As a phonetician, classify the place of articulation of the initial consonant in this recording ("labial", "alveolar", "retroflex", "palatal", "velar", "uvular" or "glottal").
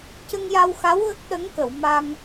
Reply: palatal